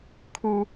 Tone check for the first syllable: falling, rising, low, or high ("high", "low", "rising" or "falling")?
low